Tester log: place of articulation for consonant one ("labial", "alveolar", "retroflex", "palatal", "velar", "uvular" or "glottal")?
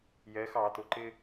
palatal